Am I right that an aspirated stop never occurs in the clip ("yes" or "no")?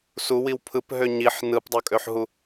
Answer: no